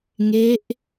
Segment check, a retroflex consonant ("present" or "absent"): absent